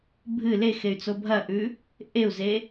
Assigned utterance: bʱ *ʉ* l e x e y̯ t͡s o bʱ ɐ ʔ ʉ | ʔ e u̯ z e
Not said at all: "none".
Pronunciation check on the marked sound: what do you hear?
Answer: ɨ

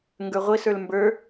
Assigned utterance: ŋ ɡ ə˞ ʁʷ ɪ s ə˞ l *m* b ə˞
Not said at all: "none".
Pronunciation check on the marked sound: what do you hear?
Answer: m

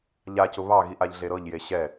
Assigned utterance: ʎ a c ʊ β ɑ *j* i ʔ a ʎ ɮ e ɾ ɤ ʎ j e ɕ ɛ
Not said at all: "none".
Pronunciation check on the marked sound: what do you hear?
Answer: ɣ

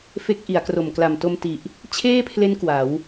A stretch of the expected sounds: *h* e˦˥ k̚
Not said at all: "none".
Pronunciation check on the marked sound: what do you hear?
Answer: f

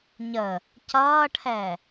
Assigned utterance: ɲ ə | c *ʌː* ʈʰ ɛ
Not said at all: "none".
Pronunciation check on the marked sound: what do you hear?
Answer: ʌː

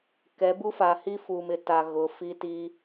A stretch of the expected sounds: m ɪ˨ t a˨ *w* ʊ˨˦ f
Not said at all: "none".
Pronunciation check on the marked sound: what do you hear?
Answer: ɣ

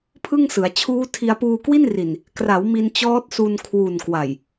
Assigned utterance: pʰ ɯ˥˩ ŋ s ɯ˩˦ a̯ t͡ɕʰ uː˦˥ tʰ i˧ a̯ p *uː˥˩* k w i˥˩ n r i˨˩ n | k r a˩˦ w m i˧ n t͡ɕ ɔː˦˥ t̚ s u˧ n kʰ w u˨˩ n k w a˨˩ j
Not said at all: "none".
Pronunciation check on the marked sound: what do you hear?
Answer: uː˧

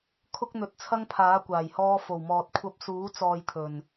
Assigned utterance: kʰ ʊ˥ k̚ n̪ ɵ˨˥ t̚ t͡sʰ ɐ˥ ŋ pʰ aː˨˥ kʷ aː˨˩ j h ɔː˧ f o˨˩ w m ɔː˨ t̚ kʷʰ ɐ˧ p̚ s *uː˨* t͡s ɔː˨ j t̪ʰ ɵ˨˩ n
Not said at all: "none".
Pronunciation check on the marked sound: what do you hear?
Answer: uː˨˥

